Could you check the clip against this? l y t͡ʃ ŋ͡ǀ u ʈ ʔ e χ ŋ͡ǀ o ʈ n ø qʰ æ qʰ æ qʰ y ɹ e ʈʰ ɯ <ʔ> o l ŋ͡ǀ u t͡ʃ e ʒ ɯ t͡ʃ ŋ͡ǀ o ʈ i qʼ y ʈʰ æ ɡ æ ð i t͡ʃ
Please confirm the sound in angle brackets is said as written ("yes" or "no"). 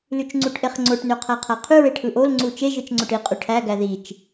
yes